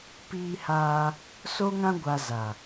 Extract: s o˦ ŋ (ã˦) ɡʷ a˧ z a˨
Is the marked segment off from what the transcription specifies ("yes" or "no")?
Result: no